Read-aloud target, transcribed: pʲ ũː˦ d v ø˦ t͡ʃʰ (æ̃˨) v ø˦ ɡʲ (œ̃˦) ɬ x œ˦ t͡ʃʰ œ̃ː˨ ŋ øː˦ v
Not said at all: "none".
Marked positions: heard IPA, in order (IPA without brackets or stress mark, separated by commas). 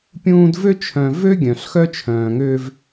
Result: œ̃˨, œ̃˨